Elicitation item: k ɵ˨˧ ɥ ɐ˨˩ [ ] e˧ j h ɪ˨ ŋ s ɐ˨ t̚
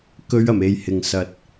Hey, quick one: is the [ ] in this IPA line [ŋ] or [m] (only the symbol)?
m